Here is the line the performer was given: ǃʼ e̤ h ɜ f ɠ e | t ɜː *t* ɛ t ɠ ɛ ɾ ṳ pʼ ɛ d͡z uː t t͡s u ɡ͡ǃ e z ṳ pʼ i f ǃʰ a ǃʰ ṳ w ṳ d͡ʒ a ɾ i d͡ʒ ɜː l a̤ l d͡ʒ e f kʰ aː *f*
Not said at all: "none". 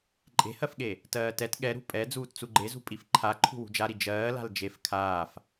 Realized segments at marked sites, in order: t, f

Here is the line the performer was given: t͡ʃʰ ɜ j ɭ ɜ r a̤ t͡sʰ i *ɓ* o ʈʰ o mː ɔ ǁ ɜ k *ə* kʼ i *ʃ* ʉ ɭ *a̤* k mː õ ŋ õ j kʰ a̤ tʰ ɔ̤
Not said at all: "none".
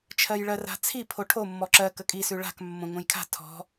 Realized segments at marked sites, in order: pʰ, ə, s, a̤

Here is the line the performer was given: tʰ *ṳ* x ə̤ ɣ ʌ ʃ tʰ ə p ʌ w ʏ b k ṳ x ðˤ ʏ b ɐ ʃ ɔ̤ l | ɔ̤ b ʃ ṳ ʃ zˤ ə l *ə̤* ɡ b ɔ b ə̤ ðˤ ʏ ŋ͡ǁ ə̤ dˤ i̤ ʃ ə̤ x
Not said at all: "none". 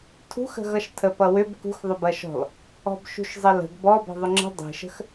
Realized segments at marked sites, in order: ṳ, ə̤

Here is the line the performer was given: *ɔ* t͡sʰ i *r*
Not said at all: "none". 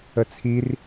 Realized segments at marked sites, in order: ə, r

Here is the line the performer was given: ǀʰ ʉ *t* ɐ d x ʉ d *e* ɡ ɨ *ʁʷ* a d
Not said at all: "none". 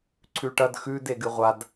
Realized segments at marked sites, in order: ʈ, e, ʁʷ

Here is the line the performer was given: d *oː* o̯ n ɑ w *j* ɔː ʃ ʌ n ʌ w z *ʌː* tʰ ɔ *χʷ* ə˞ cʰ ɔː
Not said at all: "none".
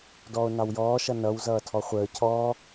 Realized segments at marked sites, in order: ɔː, j, ʌː, χʷ

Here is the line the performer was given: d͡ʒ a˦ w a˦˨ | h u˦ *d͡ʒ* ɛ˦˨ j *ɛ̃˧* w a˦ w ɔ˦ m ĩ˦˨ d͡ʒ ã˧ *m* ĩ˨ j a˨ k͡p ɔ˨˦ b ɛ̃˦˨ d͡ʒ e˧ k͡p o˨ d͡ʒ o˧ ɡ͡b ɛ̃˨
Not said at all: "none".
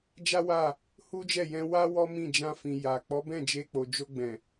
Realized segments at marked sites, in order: d͡ʒ, ɛ̃˧, f

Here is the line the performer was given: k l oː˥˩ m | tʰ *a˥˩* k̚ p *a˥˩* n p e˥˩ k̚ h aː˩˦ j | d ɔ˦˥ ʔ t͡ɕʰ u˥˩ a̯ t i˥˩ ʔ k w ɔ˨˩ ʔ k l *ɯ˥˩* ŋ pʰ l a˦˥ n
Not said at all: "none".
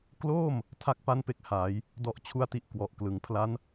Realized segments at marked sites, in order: a˥˩, a˥˩, ɯ˨˩

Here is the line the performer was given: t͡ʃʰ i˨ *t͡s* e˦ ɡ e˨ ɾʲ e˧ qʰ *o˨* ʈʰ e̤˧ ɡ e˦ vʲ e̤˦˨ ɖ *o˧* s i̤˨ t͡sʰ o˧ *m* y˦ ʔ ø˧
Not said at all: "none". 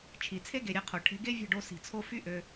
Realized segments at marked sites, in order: t͡sʰ, o˨, o˧, f

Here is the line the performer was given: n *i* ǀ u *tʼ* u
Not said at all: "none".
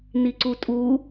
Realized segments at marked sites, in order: i, tʼ

